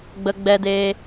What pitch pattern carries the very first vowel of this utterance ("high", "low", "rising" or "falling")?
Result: high